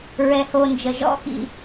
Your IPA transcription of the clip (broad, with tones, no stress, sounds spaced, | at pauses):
ɹ ɛ˨ h o˨ n d͡ʒ ə˨ ʒ ɔ̰˥ x ḭ˨